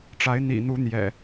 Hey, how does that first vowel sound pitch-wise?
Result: rising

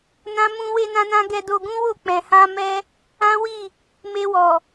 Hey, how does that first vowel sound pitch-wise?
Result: high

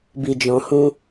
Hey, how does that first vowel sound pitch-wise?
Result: low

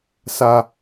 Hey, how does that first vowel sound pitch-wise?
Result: high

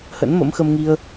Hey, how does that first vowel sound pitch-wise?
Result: rising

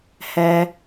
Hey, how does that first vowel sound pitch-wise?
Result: low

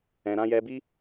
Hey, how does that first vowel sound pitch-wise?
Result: low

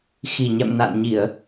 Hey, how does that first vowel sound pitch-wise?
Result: low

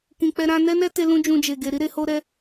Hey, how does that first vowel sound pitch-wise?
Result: low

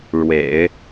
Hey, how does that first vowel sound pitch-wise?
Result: low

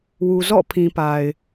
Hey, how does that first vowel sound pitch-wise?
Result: low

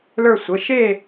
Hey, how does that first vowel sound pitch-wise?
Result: falling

